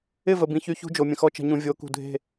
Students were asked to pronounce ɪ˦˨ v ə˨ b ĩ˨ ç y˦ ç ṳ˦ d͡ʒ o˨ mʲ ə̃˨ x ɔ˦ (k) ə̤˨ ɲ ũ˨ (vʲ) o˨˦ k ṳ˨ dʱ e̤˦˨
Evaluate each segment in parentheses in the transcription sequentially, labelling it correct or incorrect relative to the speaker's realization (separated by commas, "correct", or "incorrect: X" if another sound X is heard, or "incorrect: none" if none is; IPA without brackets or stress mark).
incorrect: t͡ʃ, correct